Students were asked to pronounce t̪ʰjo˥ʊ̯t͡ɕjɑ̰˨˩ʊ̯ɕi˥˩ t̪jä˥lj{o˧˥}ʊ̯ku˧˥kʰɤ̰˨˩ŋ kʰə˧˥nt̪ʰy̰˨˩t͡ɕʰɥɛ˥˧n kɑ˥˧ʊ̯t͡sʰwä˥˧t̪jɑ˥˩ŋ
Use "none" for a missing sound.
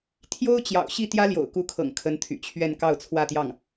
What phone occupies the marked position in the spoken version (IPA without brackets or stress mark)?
o̰˨˩